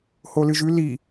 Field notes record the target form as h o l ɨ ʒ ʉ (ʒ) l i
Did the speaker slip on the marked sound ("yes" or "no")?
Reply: yes